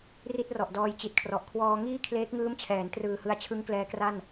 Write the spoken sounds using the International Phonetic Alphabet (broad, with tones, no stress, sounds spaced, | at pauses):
r i˥˩ t̚ r ɔ˨˩ ʔ d ɔː˧ j t͡ɕ i˨˩ t̚ kʰ r ɔ˨˩ ʔ kʰ w ɔː˧ ŋ iː˥˩ kʰ l eː˦˥ k̚ ŋ ɯː˦˥ m t͡ɕʰ ɛː˩˦ n t r ɯː˨˩ h ɯ˧ a̯ t͡ɕʰ ɯ˦˥ ŋ k l ɛː˦˥ k r a˥˩ n